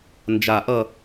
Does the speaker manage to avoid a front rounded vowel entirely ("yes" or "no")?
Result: yes